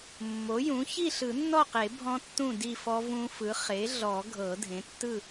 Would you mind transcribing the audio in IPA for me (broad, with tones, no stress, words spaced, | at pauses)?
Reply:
mːo˩˥jũ˩˥ çi˥˨ɬɯ˨˩˦nːɔ˥˨qe˨˩˦ bʱɔ̃˦˥tːũ˥˨ di˥˨fɔ˦˥vũ˦˥ fɯ˩˥ χe˩˥ɮɔ˨˩˦ ɡʱɤ˨˩˦dʱẽ˩˥tːɯ˥˨